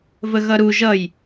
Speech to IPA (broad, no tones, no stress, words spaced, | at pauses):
vəɣʌɾu ʒʌj